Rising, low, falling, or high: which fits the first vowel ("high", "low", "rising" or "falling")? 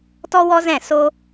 high